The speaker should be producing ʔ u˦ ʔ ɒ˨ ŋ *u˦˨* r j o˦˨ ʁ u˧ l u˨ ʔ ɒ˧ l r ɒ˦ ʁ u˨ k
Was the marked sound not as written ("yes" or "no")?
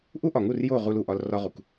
no